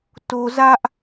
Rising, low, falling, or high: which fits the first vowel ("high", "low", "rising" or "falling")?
low